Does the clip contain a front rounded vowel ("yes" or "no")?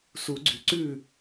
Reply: yes